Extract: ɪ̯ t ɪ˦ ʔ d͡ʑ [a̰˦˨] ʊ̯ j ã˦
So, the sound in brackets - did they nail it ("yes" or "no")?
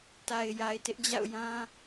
yes